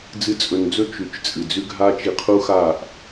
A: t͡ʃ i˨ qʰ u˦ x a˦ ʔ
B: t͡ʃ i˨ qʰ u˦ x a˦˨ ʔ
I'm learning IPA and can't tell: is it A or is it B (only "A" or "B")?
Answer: B